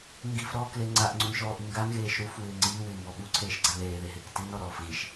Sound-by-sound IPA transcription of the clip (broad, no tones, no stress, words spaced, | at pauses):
ŋɡifɾɔːkle ŋ͡ǀaʔŋ͡ǀunʃɔːʔi ŋɡanɣeːʃ ɾufwɪː ŋ͡ǀiːwɪːmbɔ ɓuǀʰeːʃɡ͡ǀa ðeːðeɦɪːk tinɔɾɔːf ɣiʃ